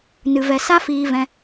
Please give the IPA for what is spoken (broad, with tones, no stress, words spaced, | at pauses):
nɨ˨vɛ˨ sa˦fiː˧vɛ̃˧